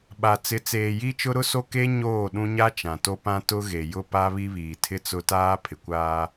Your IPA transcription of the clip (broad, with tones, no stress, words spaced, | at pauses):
ɓa˨ t͡sɪ˨t͡seː˨ji˦ t͡ʃʊ˦ɾʊ˦so˦ ke˦ ɲoː˦˨ɗũ˦ ɲa˦t͡ʃã˨to˦ pã˦tʊ˦ ɣe˨jʊ˦pa˦ βi˦βiː˨tʰɪ˦t͡sʊ˦ taː˦pʰɪ˨kʷaː˦